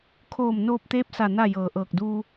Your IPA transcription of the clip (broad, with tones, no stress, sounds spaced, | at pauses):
kʰ oː˧˩ m n oː˧ p̚ t̪ eː˧˥ p̚ s a˧˩ n a˥˨ j ɤː˧˩ ʔ ɤː˧˩ k̚ d uː˧